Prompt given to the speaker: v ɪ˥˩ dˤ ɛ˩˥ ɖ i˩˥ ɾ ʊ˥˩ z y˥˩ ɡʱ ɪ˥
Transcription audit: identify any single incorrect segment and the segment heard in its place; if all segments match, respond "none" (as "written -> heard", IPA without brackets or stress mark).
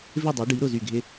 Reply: none